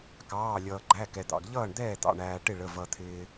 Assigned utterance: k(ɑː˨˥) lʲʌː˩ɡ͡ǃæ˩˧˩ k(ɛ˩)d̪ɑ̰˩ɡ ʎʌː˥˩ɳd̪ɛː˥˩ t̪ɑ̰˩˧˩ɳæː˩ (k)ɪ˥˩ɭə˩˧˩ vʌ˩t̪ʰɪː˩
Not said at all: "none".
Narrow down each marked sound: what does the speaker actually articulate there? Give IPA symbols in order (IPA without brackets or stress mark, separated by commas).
ɑː˩˧˩, ɛ˩, ʈ